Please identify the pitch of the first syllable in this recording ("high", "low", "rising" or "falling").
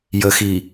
low